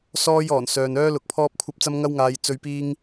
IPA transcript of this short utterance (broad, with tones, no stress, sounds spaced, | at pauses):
s ɔː˧ j ɔː˨˩ n s œː˨ n œː˥ l ʊ˨˥ k̚ pʰ ɔː˥ p̚ kʷʰ ɐ˥ p̚ t͡s ɐ˥ m ŋ ɐ˥ w ŋ aː˨˧ j t͡s ɵ˨˧ ɥ p iː˧ ŋ